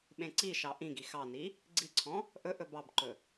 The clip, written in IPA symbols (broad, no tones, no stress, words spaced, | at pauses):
ɓẽǀiʃɑ ʔĩɡi xɑni | ɡ͡ǀiǀʰɔ̃ | ʔɵ ʔɵbɑbǃɵ